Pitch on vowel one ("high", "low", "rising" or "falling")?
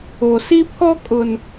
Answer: low